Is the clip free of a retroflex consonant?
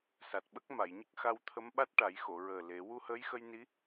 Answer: no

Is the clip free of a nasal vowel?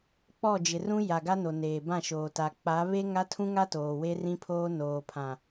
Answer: no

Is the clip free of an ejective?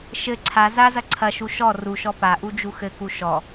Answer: yes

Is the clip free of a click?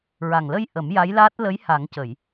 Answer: yes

